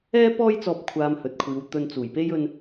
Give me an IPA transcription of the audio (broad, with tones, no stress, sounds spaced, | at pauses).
ɛː˥ p ɔː˥ j t͡s ɔː˧ p̚ kʷʰ aː˧ m h ɵ˨ t̚ kʷʰ iː˨˧ w t̪ ɵ˧ n t͡s uː˨˩ j p e˥ j ɵ˧ n